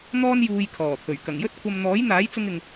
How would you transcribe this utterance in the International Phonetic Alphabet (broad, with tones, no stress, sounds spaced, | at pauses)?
n̪ ɔː˥ n j uː˧ j kʰ ɔː˨˩ t̪ʰ ɵ˨˩ ɥ k ɐ˨˩ ŋ j ɵ˥ t̚ kʷʰ ɐ˧ m n̪ ɔː˨˥ j n̪ aː˨˥ j t͡s ʊ˧ ŋ ɪ˨ ŋ